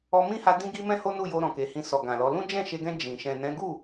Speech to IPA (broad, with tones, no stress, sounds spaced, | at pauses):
ɔ˧ m ĩ˦ h a˧ d ĩ˦ ɡ i˦ m ɛ̃˦ h o˦ n u˦˨ j o˧ ɾ ɔ̃˨ k e˨ h ĩ˧ s ɔ˨ ɡ ã˨ l ɔ˨˦ l ũ˦ d͡ʒ ɛ̃˦˨ ʃ e˧ ɡ ɛ̃˧ d͡ʒ ĩ˨ ʃ ɛ̃˨ n ɛ̃˨˦ ɡ u˦˨